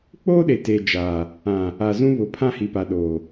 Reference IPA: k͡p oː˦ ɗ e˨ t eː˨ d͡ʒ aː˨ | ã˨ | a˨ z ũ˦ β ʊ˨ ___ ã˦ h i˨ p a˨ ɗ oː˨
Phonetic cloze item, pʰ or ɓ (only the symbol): pʰ